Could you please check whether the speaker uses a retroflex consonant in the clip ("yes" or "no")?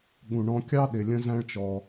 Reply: yes